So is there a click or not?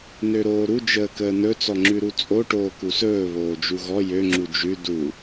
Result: yes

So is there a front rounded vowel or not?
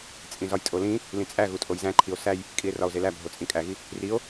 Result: no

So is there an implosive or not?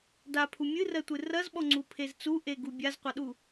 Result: yes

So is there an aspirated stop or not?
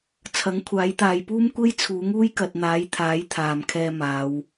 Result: yes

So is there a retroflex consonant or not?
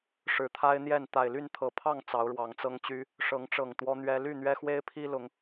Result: yes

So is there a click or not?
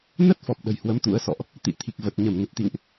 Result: no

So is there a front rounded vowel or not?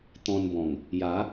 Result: no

